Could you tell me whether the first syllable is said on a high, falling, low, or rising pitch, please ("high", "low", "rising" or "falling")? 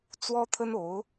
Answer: high